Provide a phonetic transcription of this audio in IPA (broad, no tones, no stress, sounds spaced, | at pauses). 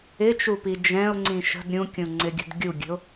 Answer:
ɪ t͡ʃ u p i d͡ʒ ɛ̃ ʊ̯ ŋ͡ǀ ĩ ʃ ə̤ d ɾʲ ũ kʲ ũ ŋ͡ǀ ɪ ɡʲ ə̤ d ɡʲ u ɡʲ ə̤ ʊ̯